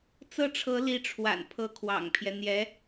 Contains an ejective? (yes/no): no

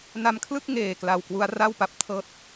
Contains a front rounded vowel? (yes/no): no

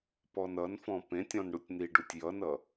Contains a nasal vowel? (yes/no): yes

